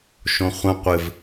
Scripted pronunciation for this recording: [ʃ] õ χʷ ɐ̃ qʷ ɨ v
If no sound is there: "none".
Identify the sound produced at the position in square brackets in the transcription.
ʃ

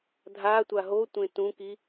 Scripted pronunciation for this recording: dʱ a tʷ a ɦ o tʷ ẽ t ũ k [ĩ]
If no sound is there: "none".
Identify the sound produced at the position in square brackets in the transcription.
i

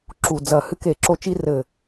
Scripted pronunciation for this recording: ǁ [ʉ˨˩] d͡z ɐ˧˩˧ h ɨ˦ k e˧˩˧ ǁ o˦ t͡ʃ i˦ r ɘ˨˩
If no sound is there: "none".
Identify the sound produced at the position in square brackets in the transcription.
u˨˩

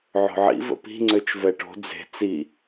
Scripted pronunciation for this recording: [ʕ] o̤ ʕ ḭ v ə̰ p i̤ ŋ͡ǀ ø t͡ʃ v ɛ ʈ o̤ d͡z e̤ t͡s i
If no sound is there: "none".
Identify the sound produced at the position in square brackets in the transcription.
ʕ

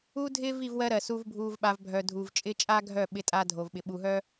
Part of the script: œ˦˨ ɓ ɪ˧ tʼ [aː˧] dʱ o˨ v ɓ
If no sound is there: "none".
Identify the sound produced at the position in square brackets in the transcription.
aː˧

